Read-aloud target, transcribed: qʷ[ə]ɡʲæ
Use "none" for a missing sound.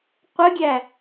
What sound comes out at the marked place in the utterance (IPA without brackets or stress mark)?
ə